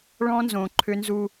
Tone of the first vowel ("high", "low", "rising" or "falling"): high